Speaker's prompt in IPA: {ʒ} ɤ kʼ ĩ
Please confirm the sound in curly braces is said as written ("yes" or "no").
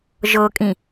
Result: yes